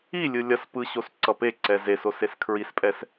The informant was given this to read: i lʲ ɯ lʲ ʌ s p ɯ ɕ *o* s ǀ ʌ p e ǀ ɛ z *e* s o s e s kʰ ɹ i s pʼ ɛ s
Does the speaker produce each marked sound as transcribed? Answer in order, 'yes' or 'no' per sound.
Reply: yes, yes

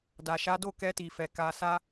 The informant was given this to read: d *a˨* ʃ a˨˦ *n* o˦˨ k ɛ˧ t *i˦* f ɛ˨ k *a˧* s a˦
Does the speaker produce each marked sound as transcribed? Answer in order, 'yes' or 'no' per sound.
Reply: yes, no, no, yes

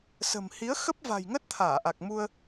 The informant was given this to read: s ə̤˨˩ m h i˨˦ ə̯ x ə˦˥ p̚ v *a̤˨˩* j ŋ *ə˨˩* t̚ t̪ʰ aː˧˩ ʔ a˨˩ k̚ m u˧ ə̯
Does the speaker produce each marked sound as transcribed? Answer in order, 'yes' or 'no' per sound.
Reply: yes, no

